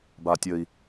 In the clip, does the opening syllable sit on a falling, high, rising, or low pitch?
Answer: low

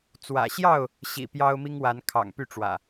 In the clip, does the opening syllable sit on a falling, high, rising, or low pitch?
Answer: low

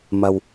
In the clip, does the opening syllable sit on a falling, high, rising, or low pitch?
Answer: low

